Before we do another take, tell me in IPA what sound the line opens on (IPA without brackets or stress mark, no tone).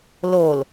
l